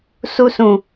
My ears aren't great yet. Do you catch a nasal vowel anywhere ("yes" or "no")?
yes